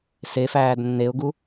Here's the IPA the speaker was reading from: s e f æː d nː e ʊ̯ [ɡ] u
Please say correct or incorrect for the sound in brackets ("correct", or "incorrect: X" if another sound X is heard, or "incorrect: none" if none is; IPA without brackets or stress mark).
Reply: correct